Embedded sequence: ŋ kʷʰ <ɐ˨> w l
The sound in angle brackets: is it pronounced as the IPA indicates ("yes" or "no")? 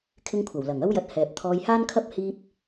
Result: no